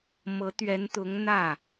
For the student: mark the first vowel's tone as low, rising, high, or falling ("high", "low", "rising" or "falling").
rising